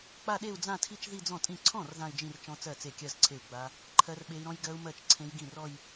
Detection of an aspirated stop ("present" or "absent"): present